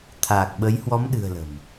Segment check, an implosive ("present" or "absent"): present